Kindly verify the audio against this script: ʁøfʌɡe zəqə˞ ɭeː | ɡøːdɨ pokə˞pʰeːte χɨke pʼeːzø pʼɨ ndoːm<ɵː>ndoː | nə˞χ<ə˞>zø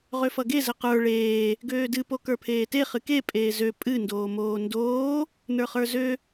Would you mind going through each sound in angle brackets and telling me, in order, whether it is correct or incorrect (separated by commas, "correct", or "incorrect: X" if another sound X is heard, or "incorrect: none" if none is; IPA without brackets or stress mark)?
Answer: incorrect: oː, correct